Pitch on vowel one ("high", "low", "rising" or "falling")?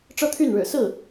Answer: high